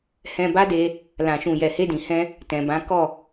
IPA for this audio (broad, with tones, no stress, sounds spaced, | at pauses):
h ɛ̃˧ b a˦ d e˧ | l ã˨ ʃ ũ˨ j ɛ˨ h e˧ d ĩ˨ h ɛ̃˧ | t ɛ̃˨ b ã˨˦ k ɔ˦˨